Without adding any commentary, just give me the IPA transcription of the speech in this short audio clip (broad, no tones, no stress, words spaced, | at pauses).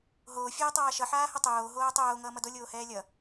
ɦoː fʲɛːtˤaːʃʌ ħaːhʌtˤoː ɦoːtˤoː ŋʌːmʌdo lʲoːhɛːlʲʌ